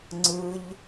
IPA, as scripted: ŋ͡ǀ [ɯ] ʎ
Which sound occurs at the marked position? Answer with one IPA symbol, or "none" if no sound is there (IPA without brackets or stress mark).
ɯ